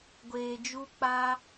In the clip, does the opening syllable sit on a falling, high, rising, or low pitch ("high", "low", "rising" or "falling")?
low